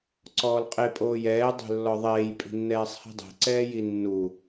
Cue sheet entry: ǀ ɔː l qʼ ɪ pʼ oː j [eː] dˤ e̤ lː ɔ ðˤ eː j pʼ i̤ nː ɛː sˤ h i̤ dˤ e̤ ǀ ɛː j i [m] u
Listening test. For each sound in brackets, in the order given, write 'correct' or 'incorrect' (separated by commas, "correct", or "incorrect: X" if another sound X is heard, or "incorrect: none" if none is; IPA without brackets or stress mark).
incorrect: ɛː, incorrect: nː